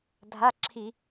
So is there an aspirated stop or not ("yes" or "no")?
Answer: yes